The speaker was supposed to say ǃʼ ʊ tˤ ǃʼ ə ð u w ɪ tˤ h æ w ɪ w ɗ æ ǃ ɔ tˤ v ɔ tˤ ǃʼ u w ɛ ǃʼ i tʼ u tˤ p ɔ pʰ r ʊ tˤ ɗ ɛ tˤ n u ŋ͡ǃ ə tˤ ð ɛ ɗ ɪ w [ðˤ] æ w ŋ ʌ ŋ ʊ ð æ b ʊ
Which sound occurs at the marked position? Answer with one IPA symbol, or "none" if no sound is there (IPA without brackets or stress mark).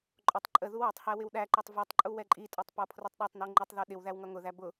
ð